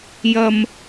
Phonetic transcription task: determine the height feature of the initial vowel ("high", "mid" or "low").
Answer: low